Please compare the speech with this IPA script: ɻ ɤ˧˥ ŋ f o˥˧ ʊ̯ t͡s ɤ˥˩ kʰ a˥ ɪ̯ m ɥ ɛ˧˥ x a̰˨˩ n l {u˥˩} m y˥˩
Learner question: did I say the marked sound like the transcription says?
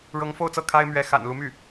no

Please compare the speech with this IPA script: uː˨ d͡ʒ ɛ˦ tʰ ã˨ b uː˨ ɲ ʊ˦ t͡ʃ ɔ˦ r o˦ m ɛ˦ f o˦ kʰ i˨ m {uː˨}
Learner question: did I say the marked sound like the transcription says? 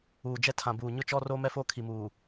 yes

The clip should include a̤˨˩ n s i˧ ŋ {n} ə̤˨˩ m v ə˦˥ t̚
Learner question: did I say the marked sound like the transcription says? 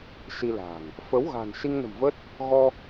yes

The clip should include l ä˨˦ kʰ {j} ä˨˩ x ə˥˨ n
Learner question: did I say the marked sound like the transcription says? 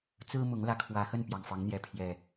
no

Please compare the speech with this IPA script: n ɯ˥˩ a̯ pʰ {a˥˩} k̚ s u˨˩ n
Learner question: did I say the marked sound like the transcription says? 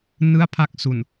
yes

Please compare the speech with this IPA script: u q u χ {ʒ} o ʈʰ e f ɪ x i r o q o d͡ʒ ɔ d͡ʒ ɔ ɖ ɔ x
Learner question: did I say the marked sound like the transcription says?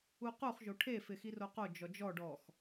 yes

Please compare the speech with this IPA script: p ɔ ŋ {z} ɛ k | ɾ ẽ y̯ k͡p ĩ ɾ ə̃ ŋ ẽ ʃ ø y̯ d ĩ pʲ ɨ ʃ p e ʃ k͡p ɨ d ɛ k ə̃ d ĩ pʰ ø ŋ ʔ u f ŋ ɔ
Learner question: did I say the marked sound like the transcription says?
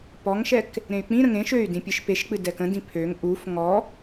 no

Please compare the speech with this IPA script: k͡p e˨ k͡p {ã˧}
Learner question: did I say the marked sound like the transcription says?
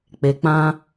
yes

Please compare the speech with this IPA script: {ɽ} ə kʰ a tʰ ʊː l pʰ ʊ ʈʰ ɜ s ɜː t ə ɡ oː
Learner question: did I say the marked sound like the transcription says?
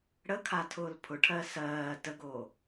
yes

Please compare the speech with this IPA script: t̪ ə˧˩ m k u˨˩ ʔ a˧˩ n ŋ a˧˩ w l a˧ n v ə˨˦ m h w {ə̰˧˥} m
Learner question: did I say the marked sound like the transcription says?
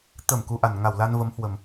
no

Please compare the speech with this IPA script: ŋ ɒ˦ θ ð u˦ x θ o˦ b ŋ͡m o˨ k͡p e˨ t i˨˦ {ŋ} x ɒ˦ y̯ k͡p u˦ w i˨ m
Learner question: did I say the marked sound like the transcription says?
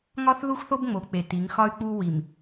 yes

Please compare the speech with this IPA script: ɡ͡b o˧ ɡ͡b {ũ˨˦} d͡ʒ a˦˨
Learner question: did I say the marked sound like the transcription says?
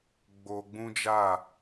no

